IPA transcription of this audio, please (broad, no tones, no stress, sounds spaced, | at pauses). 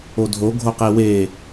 o dʱ o ɡʱ o q e w e